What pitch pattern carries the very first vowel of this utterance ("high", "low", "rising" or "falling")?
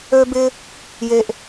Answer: high